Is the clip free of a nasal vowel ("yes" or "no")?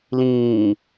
no